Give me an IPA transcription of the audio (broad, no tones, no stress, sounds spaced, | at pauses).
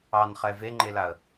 ɑ n χ ɛ v e ŋ͡ǃ e l a ə̯